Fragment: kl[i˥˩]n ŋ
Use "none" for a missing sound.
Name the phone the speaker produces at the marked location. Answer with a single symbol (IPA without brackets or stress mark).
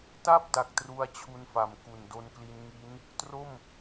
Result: i˧